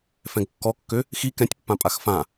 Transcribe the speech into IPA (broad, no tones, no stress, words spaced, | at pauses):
fɛ̃ɡkːɔkːø | xi kɛ̃tʲpːã pʼaxfã